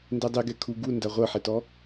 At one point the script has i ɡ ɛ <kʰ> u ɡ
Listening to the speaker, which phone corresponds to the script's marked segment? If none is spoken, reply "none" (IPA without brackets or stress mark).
kʰ